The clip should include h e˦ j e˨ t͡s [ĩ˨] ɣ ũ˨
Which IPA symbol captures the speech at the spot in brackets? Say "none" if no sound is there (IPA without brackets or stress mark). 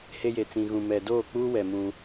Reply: ĩ˨